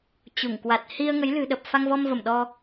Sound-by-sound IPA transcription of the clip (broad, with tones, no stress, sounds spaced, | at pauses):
t͡ɕ u˧˩ ŋ k w a˨˩ t̚ h i˧ ə̯ ŋ ə˨˦ j l ɨ̤˨˩ ɗ ə˨˩ p̚ f a˧ ŋ v ɔ˧ m v ə˧˩ m ɗ ɔ˧